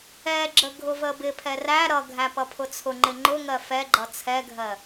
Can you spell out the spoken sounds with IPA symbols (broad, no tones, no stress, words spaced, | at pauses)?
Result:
ɛɡ͡ǁə ɡʱʊvəbɪpʰɛ ræ ɾʌɡʱæ pʌpʰʊt͡sʰʊŋ͡ǃɪ ŋ͡ǃʊŋɜ fɛɡ͡ǃʌ t͡sʰɛɡʱɜ